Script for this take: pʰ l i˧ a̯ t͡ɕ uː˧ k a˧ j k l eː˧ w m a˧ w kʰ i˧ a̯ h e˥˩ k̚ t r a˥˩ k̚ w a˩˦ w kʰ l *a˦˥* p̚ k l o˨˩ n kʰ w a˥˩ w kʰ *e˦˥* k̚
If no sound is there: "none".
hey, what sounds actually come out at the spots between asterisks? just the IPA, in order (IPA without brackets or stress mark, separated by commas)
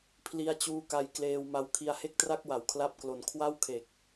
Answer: a˦˥, e˨˩